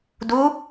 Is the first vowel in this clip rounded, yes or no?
yes